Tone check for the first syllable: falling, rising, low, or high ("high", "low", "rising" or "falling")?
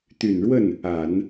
low